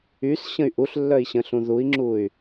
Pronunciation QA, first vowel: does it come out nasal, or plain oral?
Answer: oral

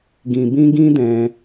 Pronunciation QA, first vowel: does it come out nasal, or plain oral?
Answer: nasal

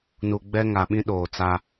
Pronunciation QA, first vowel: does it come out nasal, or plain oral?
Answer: oral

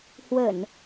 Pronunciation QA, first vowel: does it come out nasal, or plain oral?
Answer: oral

